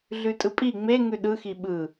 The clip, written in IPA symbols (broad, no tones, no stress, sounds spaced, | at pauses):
ɮ ʉ tʼ ɯ pʼ i ŋ͡m e ŋ ʉ ɗ ɯ x i ɓ ɯ